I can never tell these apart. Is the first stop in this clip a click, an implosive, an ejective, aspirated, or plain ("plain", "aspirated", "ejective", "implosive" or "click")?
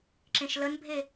click